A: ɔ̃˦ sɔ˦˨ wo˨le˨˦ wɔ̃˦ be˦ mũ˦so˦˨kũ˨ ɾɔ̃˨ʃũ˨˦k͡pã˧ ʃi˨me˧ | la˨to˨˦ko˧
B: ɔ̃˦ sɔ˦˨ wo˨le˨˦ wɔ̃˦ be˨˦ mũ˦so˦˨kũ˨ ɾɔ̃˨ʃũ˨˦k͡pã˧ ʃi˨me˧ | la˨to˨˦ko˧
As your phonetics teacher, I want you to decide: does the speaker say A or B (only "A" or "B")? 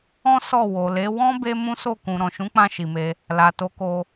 A